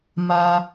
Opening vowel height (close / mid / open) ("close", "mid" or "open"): open